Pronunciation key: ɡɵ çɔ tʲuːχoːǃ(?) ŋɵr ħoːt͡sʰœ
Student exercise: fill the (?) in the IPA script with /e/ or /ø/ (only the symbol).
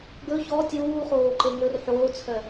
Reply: e